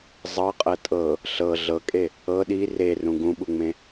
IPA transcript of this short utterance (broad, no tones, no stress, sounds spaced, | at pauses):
zˤ ɤ qʼ ɤ tʼ ɤ | ɬ ɤ ɮ ɤ kʼ e | ɤ ɗ i r e r ũ ɡ ũ ɓ u ŋ͡m ẽ